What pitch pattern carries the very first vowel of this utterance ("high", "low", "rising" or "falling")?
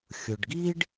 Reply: low